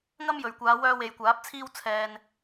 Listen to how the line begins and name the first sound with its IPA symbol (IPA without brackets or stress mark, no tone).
ŋ